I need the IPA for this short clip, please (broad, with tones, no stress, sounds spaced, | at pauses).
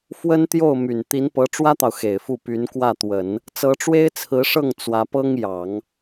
f w ə˥ n t̪ j o˥˩ ʊ̯ m y˨˩ n t̪ i˧˥ n p ɤ˧˥ ʈ͡ʂ w ä˥ t̪ ɑ˨ ʊ̯ x e˨˩ ɪ̯ f u˥˩ p y˧˥ n k w ä˥˩ t̪ w ə˨˩˦ n | t͡s ɤ˧˥ ʈ͡ʂ w e˥ ɪ̯ t͡sʰ ɹ̩˧˥ ʂ ɤ˥˩ ŋ t͡s w ä˧˥ p ɤ˥ ŋ j ɑ˨˩˦ ŋ